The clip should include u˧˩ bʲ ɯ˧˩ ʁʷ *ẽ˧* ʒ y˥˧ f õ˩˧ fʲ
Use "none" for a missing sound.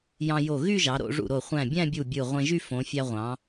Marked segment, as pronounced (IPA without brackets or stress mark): ẽ˧